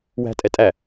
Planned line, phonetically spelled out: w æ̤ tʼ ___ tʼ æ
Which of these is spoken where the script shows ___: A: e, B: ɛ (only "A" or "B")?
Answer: B